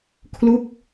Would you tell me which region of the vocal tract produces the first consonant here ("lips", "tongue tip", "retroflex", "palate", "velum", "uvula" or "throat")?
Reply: velum